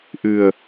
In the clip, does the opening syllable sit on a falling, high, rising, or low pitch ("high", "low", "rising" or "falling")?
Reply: low